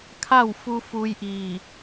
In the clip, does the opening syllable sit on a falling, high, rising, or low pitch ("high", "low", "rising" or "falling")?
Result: falling